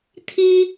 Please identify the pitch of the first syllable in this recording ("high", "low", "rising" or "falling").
high